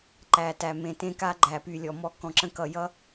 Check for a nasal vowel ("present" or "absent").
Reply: present